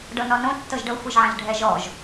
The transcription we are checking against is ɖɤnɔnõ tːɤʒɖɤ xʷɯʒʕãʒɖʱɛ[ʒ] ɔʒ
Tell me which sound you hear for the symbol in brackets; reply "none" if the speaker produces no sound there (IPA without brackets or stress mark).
ʒ